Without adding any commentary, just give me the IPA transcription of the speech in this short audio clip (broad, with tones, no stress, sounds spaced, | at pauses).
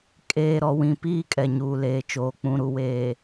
kʼ eː˨ ɾ ɔ˨ w ĩ˨ p iː˦ kʼ ɛ˨ ɲ uː˨ l eː˨ t͡ʃ oː˦ k͡p ũ˦ ɾ u˦ w eː˨